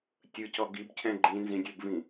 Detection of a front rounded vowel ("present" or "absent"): absent